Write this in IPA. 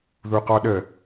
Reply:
ðuqɔɗə

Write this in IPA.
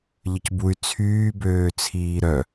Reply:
ʎəcbuy̯ t͡sʰyːbøːt͡sʰiː ɾœ

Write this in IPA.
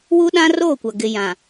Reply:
wu˦ɗã˦roː˦˨kʷa˨ ɡɪ˨ jã˨

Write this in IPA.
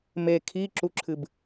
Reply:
me kʰiǁuǁʰɨb

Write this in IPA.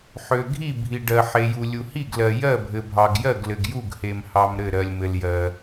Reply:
ħø˩ɡʱi˥˩bʱi˩ɖɜ˩ ħe˩ju˩lʲu˩ hi˥˩ɡlɜ˩ jɜ˥˩bʱɘ˩bʱɑ˩ɡjɜ˥˩ɡ lɘ˩ɡju˥˩ɡ he˩mhɑ˩m ɾɘ˥˩ ɾɜ˩lʲmɘ˩l jɜ˩

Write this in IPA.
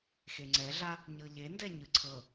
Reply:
xeŋ͡ǀɛɮa | ɲɤʎendɛ ɲɯǀʰɤ

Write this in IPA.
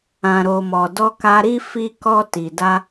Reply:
ã˨ɾo˨mɔ˨ dɔ˧ka˧ɾi˦ fi˧kɔ˧ti˨da˧

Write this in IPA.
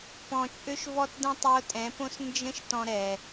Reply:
pɔ̃˨t͡ʃʼø˧ʃvɔ˧t də̃˦tˤo˧tʼɛ̃˨˦põ˦s nd͡ʒə̃˦ʃ tɔ̃˧ɾɛ˨

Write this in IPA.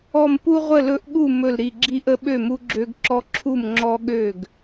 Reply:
ɔ˧˩mpu˦ ʁʷə˥˨lɵ˦ʔɠu˥˨ mɵ˧˩lɾi˧˩ɡ͡ǁi˦ʔə˦ ɓø˥˨mu˦ɡ͡ǁø˦ɡ ǁɔ˦ǁʰu˥˨mŋ͡ǁɔ˦ ɠø˥˨ɡ

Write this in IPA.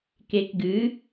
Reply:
kek ɡɨ

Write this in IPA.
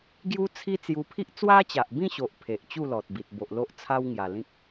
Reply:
ɡju˦t͡sʰi˦ t͡sju˧pʰi˦ʔ t͡swa˦t͡ɕa˨ʔbĩ˥˧ɕo˨ʔ pʰe˨ʔ t͡ɕu˥˧lɔ˨t̚bi˨t̚ bo˨ʔlo˦ʔ t͡sʰa˦wŋja˨˩lĩ˦k̚

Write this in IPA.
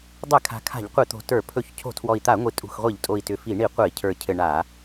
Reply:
dˤɛ˧˩˧ kʰa̤˨˩ kʰa̤˧˩˧ʎqʷi˧˩˧t̪o̤˨˩ tə˞˧˩˧pʰɵ˧˩˧ç cʰo̤˧˩˧tʰwɔ˨˩i̯t̪a˧˩˧ ŋʷi˨˩ tʼṳ˨˩xʁʷi˧˩˧ʎtʼo˨˩i̯ tʏ˨˩fi˧˩˧ ɳi˧˩˧qʷɘ˧˩˧i̯cʰə˞˨˩ cʰɘ˨˩ ɳa˧˩˧

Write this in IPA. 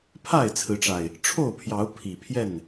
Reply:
pʰa˥˨ɪ̯t͡sʰɹ̩˨˦ʈ͡ʂa˨˩ɪ̯ | ʈ͡ʂʰo˥˨ʊ̯pʰjɑ˨˦ʊ̯ pʰi˨˩pʰjɛ˥˨n

